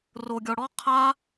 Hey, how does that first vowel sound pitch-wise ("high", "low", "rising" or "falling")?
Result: low